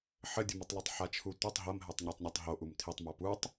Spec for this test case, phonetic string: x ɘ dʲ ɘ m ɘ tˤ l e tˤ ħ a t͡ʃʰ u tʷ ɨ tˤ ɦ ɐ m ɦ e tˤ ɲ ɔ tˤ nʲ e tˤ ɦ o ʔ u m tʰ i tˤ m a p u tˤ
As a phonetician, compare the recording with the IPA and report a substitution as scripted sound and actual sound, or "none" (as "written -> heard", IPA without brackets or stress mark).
x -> ħ